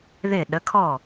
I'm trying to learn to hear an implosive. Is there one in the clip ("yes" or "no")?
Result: yes